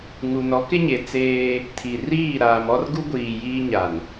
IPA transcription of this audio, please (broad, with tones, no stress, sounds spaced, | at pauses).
ŋ u˨ n ɔ˨˦ k ɪ˦ ɲ e˨ t͡s eː˦ | tʰ i˨ r iː˦˨ ɾ aː˨ m ɔ˦ r ɡ u˦ ɡʷ iː˨ j iː˦ ɲ a˨ n